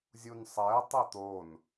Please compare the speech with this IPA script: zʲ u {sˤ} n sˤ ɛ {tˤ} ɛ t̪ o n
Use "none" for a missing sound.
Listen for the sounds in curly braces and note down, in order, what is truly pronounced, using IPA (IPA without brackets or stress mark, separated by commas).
none, tˤ